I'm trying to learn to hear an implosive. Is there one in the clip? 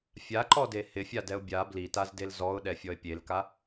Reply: yes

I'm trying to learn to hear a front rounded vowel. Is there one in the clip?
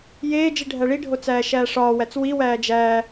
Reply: no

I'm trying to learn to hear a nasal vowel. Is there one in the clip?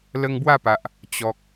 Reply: no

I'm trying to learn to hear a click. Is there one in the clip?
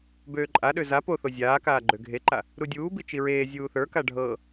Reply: yes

